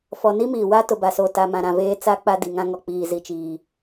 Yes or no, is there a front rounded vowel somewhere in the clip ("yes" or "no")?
no